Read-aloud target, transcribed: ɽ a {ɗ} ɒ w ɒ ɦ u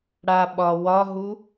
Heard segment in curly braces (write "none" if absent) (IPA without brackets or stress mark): ɓ